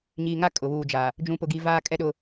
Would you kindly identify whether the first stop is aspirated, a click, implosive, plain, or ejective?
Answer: ejective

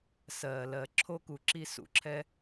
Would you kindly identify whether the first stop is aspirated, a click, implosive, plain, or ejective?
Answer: click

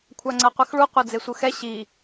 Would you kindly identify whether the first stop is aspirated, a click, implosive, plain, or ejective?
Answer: aspirated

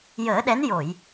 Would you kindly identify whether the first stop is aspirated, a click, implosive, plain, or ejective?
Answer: implosive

